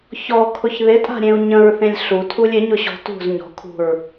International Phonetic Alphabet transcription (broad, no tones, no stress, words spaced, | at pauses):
çɔkʰʊç ðɪtʼa̤ɾʲẽu̯ ɲə̃ɹθẽlʲ ɬutʰulʲ ɪɲʊɕɔ̤ tṳz ɲɔ̤kʰṳɹ